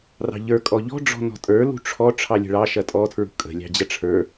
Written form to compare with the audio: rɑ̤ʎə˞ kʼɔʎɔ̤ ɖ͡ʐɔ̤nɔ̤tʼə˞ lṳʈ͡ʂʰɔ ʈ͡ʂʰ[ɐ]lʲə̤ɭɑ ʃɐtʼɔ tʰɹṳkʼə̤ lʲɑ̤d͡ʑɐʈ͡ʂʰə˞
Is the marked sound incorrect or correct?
incorrect